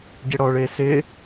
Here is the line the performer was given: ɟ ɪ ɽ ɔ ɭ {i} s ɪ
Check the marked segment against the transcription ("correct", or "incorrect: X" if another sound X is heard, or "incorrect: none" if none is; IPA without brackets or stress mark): incorrect: e